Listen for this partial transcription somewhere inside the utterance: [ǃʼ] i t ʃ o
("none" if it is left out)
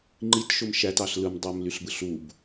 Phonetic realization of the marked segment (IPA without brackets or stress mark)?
ŋ͡ǃ